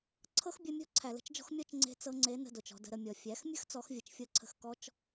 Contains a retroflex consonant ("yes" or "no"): no